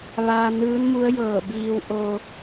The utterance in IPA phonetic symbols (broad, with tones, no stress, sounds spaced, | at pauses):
ʋ aː˧ n ɯː˧˥ n m u˧˥ ə̯ j ɤː˧˩ b iː˧ w ʔ o˧